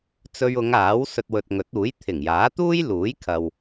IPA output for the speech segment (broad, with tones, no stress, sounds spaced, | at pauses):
t͡s ɵ˧ ɥ ʊ˨˧ ŋ aː˨˥ w s ɵ˧ t̚ w ɵ˨ t̚ ŋ ɵ˨˥ t̚ uː˨˥ j t̪ʰ ɪ˨˩ ŋ j aː˨˥ t̪ uː˥ j l uː˨˥ j kʰ ɐ˨ w